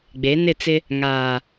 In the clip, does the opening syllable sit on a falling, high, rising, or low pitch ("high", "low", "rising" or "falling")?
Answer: rising